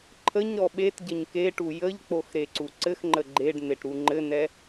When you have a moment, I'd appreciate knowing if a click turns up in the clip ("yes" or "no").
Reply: yes